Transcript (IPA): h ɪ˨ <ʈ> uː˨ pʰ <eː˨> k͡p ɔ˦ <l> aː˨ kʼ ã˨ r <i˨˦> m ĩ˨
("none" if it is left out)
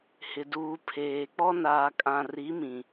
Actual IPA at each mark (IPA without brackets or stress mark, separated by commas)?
d, eː˨, n, i˨˦